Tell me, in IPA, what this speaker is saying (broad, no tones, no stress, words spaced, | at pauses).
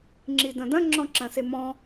ŋ͡ǁidɐ̃dɐ̃ ŋ͡ǁɔ̃ǁɐ̃semɔ̃